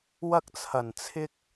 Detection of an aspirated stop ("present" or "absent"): present